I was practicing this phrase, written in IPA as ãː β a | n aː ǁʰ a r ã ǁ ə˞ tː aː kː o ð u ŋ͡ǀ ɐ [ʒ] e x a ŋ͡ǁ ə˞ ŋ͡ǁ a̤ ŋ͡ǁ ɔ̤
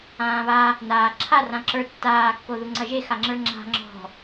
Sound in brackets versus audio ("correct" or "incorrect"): correct